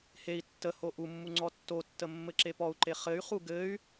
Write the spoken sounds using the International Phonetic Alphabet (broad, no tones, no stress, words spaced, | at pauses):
hei̯ tːəho ʔumːu ŋ͡ǀɔtːotːə mːɘǁepɔu̯ǃe χɘy̯χu ɡɘy̯